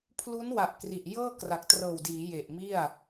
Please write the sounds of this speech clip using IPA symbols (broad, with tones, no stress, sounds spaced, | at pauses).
pʰ l u˦˥ n w a˨˩ ʔ k r i˨˩ ʔ j ɤː˥˩ k r a˨˩ k̚ t r ɤː˨˩ w d iː˩˦ j e˨˩ ʔ m i˥˩ a̯